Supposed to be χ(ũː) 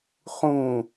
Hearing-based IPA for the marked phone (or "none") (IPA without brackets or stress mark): ũ